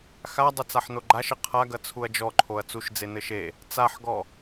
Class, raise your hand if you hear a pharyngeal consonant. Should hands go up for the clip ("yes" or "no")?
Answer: yes